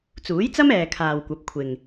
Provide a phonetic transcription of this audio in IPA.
t͡suː˨˥jt͡sɐ˥mɛː˨ kʰaː˨wkʷɐ˨˥p̚kʷʰɪ˨ŋ

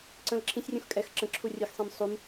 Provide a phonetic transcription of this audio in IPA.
ǀə̃l ǁʰĩsʲrʲũx kʼɛx ǁə̃ ǁʰurʲɨxsˤĩm sˤum

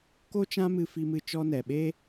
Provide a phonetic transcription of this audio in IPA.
ko˦t͡ʃã˦mɨ˧ fi˧mɨ˧ t͡ʃɔ˧nɛ˨ɓeː˦

